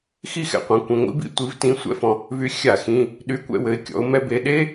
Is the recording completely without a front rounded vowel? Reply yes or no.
no